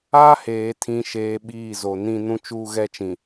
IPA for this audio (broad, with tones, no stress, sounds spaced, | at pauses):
a˦ h eː˨ tʰ ĩ˨ ʃ eː˨ ɓ iː˦˨ z o˨ n ĩ˦ n ũ˦ t͡ʃ uː˦ ɣ ɛ˦ t͡ʃ ĩ˨